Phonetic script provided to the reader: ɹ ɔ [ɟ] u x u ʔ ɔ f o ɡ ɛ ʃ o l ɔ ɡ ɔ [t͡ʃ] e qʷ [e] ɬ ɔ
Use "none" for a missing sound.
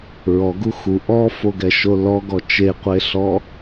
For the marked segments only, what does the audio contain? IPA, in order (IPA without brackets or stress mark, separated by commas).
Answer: ɡ, t͡ʃ, e